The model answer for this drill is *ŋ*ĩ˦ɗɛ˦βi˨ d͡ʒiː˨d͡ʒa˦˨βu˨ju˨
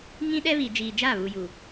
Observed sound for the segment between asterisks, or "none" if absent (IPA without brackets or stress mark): ŋ